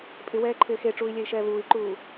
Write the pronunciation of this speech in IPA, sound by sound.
pʼɪwɛːǃʰɪː xeʈ͡ʂuːi̯lʲɛi̯ʃɛː βuːi̯ǃuː

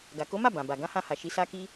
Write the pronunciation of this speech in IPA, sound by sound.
ɡa˨ ko˨˦ma˦˨ bã˨ba˨ ɡã˨˦hã˧ha˨ ʃi˨˦sa˦ki˦

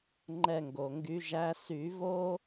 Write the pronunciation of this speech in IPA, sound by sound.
ŋ͡ǃɛ˦˨ŋɡo˩ŋɡy˨˦ʒæ˧˥˧ sy˨˩˦vo˥

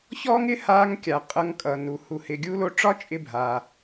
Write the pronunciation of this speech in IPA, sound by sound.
çɔː˥ŋ ɪ˥ haː˧ŋkʲa˩ qʼʌ˧ŋkʼʌ˩nu˩ hu˩hɪ˩ɡʲu˧lo˧ ʈ͡ʂɒ˥t͡ʃʼɪ˧ bʱaː˩

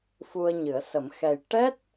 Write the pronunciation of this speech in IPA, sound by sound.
fu˧ə̯ɲɨ˨˩˦ə̯sə˨˩˦m xɛ˨˩j ʈɛ˦˥t̚

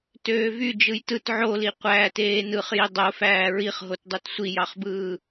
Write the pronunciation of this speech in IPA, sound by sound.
tøːvy d͡ʒɯjtɯt ʕoli qʷæːteːnɯχji dˤofæː ɹiχɦotdˤøt sʷijɑχbɯː

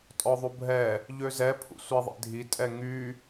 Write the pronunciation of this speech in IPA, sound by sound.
tʼɔðˤubʱɛ | ʎøzɛ pʰṵsʷiðˤḛdʱi tʼɛŋy

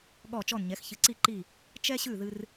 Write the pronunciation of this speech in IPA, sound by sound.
ɠɔ˦˨t͡ʃɔ˦˨nɲɛ˨˥x çɨ˨˥ǀi˦˨ǃi˦˨ | t͡ʃɛ˦ɕʉ˦˨ ðɨ˦r

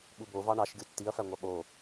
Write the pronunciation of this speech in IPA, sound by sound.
ɓubo vɑɳɑʃɡʲu tːiɐ̯fæŋʷɑ ɓo

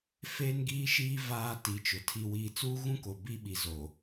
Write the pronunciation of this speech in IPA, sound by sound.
feː˦nɡiː˦ʃiː˦ vaː˦ti˨˦t͡ʃʊ˨ tʰi˨wiː˨ t͡suː˦ɣũ˦ko˨ bi˦ɓi˨ zo˨

